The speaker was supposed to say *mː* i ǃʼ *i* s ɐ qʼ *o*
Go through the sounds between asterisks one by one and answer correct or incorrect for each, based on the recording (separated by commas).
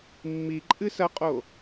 correct, incorrect, correct